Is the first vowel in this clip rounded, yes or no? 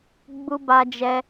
yes